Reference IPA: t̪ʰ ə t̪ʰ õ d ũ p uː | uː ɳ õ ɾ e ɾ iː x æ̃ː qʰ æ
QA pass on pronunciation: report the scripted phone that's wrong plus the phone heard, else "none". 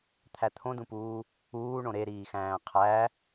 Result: ə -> æ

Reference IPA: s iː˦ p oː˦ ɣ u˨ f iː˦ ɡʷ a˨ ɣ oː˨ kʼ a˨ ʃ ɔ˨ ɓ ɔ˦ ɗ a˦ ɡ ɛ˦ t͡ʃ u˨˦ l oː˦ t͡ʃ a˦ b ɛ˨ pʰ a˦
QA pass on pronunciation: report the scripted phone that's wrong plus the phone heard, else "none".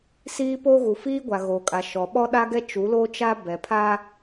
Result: none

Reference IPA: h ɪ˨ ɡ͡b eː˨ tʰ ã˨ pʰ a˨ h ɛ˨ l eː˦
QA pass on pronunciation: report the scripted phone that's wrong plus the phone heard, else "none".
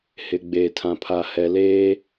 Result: none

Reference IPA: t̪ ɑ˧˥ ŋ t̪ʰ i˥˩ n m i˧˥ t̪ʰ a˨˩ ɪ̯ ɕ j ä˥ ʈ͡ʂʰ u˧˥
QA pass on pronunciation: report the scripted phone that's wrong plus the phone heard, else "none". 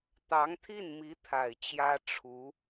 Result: ɕ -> t͡ɕ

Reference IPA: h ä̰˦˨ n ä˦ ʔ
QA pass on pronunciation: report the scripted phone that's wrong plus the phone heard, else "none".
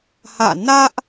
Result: none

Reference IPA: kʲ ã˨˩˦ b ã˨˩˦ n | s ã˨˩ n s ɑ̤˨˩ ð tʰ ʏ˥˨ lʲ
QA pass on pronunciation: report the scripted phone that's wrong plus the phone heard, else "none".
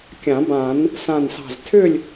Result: ð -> z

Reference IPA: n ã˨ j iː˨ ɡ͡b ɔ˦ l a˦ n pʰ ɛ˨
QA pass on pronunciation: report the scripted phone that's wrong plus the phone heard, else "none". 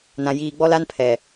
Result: none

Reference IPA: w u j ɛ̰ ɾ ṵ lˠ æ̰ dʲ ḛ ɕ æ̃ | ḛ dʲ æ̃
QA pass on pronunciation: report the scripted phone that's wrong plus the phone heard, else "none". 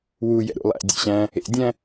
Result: none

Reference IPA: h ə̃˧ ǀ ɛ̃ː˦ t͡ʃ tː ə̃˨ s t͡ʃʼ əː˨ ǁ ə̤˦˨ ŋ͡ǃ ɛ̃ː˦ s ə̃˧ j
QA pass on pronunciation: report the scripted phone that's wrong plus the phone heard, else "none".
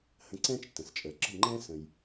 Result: none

